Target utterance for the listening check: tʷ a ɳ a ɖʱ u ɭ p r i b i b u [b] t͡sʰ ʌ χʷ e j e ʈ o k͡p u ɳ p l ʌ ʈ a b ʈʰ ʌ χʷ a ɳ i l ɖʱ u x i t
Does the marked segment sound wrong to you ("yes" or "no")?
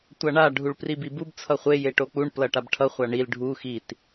no